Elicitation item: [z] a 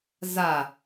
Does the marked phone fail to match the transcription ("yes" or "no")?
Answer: no